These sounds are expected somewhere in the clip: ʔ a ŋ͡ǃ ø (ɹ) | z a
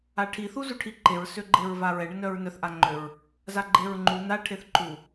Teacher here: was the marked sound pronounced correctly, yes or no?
yes